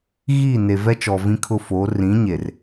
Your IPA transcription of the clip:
ɣ iː˦˨ n e˨ v ɛ˦ t͡ʃ ɔ˨ v ĩ˦ kʰ ʊ˦ f oː˨˦ r ĩ˨˦ ɲ e˨ r

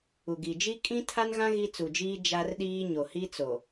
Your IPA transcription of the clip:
u˨ ɡ i˨ d͡ʒ i˦ kʼ ĩ˦ tʰ a˦ n ɣ ã˦ ɣ i˦ t͡s u˨ d͡ʒ iː˦ d͡ʒ a˦ r ɗ iː˦ ɲ o˨ h i˦ t͡s o˨

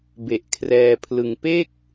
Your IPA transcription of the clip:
b e˨˩ ʔ kʰ r ɛː˧ pʰ l ɯ˨˩ ŋ p e˥˩ k̚

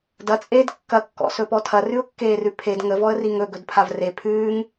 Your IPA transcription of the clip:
d ɐ t͡sʼ eː d kː ɐ kː ɔ̰ s ɵ p ɔ tʰ ɐ r ʉ ʊ̯ kː eː r ʉ pʰ e d ŋ ə v ɔ ə̯ r i ŋ ɵ ɡ ɵ d pʰ a v r e pʰ ʉː ŋ

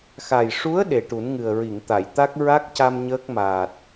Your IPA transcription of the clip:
x a˨˩ j ʂ u˧˥ ə̯ ɗ e˨˩ ʈ u˨˩˦ n ŋ ɨ˨˩ ə̯ ɹ i˨˩˨ ŋ t̪ a˨˩˨ j t̪ a˦˥ k̚ ɹ a˦˥ k̚ c a˧ m ɲ əː˦˥ k̚ m aː˨˩ t̚

